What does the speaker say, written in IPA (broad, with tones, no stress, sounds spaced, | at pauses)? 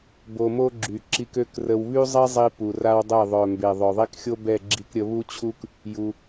b o˧ m o˦ ɡ͡ǁ y˨ ǁ i˧ k ø˦ k r ə˧ w β y˦ zˤ i˦ zˤ i˧ p u˨ r a˦ w dˤ e˦˨ ðˤ œ˨ m b e˨ ðˤ œ˨ ðˤ i˦ k xʲ o˦ b ɛ˦˨ ɡ͡ǁ i˧ k ɾʲ ə˧ β u˦ t͡ɕʰ u˦ k | j u˧